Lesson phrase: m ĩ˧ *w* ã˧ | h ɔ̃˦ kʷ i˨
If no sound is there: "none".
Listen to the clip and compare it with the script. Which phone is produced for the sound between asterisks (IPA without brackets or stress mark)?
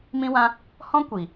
w